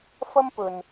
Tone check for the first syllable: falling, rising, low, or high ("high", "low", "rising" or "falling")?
high